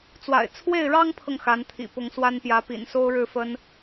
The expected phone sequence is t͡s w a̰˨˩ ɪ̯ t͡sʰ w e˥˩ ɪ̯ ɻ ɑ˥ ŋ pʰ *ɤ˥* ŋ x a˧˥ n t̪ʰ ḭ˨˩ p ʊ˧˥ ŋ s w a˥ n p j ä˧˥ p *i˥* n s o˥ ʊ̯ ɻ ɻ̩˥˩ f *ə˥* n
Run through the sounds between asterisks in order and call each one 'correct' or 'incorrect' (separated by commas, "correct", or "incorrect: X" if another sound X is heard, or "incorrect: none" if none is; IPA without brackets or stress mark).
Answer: incorrect: ɤ˨, incorrect: ḭ˨˩, correct